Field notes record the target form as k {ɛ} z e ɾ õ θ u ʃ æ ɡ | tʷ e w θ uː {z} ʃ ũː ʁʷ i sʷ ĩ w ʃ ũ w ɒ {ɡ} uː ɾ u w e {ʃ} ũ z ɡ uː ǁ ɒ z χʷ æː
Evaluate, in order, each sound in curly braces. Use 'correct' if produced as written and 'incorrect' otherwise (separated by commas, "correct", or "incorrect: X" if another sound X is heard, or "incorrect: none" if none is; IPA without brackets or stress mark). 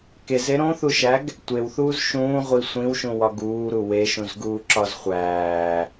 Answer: incorrect: e, correct, correct, correct